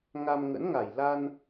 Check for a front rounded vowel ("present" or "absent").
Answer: absent